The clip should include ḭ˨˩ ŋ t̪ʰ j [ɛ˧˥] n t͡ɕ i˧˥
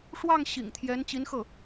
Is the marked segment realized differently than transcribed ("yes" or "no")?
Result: no